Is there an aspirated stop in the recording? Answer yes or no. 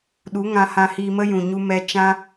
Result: no